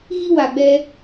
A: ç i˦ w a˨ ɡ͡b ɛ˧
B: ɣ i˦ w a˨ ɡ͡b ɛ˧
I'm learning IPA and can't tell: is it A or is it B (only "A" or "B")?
B